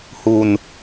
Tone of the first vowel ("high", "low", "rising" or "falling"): low